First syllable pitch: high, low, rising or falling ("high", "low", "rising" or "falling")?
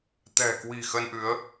low